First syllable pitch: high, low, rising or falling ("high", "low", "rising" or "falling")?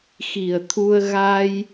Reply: low